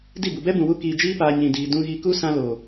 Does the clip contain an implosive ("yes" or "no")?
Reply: no